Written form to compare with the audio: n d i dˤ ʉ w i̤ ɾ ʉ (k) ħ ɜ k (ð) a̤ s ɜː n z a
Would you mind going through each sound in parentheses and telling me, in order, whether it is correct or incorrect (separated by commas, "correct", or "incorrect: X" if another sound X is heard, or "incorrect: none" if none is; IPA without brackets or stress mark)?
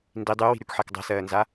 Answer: correct, incorrect: dˤ